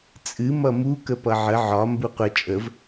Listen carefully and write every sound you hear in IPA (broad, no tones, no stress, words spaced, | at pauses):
t͡sʼɨ mʌmu kəpʌʕə ʕɒ mbuqʷə t͡ʃʼəv